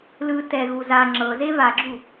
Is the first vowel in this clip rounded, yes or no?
no